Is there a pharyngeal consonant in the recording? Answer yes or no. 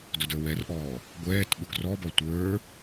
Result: no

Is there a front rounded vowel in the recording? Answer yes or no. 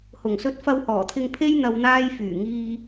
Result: yes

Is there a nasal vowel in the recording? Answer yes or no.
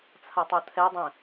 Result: yes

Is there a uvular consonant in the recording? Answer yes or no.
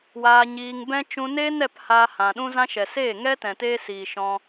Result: no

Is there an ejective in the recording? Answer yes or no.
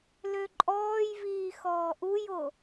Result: yes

